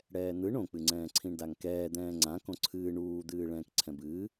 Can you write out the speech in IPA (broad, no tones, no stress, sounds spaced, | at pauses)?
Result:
ɽ ɛː n̪ ɯ ɳ õ k͡p ɨ ŋ͡ǀ ɛ̃ː ǀʰ ĩ ɳ d a ŋ k ɛː d̪ ɛ̃ː ŋ͡ǀ ã k õ ǀʰ ɨː ɳ uː d̪ ɨː ɭ ɛ̃ː k ǀʰ ɛ̃ b ɨː